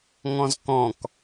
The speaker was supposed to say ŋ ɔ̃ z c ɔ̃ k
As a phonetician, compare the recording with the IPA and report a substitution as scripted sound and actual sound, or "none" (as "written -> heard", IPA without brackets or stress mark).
c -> k